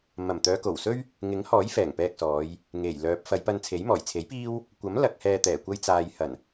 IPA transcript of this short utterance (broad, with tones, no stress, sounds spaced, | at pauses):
m ɐ˨˩ m t̪ œː˨˧ k o˨˩ w s ɵ˥ ɥ | ŋ ɪ˨˥ ŋ h ɔː˨˥ j f ɛː˨˩ ŋ p ɛː˧ k̚ s ɔː˨˧ j | ŋ e˨˩ j l œː˨˥ p̚ f ɐ˨˧ j p ɐ˧ n t͡sʰ e˨˥ j m ɔː˨˩ j t͡sʰ e˨˥ j p iː˥ w | kʷ ɐ˨˥ m l ɐ˧ k̚ h ɛː˧ t̪ ɛː˨˩ kʷ ɐ˧ j t͡s aː˨ j h ɐ˨˩ n